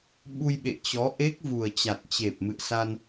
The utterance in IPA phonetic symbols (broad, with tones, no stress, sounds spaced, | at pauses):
ɓ u˧ j ɓ ḛ˧˨ t͡ɕ ɔ˨˦ ʔ e˦˥ k̚ v u˨˩ ə̯ t͡ɕ a˨˩ t̚ t͡ɕ e˨˩ p̚ m ɨ̰˧˨ ə̯ s a˧ n